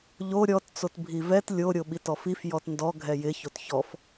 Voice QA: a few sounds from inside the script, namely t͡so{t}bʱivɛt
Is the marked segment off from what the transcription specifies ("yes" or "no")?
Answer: no